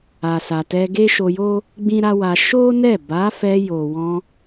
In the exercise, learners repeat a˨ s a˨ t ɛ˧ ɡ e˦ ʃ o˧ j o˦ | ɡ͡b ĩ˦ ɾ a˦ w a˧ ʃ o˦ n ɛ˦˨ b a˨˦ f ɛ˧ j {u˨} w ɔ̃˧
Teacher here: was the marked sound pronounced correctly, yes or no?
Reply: no